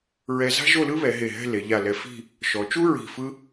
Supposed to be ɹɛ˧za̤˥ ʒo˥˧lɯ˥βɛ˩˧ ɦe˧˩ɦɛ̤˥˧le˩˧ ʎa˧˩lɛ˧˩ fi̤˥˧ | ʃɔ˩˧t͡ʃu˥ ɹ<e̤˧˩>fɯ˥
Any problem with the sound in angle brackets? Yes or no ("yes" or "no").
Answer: yes